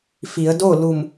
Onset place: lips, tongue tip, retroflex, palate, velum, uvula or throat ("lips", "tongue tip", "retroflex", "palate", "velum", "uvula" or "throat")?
lips